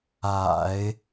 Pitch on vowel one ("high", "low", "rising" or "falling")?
low